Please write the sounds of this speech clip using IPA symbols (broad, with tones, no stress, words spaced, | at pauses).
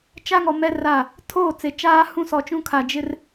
t͡ʃa˦ŋɔ˨ mɛ˦ra˦˨ | tʰoː˦˨t͡se˨ t͡ʃaː˦hũ˦sɔ˨t͡ʃũ˦ kʰa˨d͡ʒɪ˦r